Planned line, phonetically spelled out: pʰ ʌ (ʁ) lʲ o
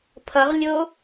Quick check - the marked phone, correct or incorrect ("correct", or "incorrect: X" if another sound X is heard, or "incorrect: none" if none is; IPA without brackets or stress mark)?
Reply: correct